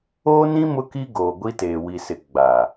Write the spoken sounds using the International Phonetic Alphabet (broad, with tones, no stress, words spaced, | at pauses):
oː˦nĩ˦ mʊ˦ki˦ɡoː˨ ɡʷi˦teː˨wi˨sɪ˨ ɡ͡ba˨